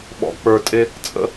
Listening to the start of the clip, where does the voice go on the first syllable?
low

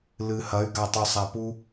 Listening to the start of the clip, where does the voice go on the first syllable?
low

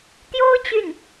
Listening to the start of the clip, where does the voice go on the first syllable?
high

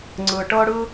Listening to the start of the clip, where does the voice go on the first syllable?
low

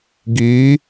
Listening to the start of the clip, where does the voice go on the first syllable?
rising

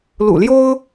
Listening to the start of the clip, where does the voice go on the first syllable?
low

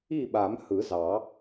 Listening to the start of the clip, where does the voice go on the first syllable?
falling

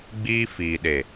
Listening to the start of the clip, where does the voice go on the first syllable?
high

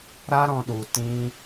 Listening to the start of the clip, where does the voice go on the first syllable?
high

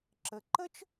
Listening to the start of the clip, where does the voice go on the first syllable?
low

